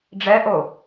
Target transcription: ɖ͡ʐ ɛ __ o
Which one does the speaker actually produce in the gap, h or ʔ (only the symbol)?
ʔ